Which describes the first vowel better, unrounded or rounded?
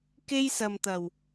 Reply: unrounded